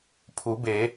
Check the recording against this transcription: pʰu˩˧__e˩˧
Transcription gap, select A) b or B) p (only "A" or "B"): A